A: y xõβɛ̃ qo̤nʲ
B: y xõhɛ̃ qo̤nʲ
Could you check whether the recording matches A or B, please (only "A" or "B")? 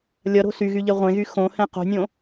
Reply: B